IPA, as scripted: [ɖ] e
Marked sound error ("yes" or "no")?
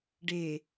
no